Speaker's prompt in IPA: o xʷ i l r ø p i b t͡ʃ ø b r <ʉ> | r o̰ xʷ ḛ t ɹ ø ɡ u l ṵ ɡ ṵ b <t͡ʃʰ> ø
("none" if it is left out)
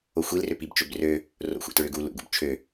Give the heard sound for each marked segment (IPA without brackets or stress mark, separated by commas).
ø, t͡ʃʰ